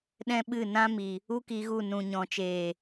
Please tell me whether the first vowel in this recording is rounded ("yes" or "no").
no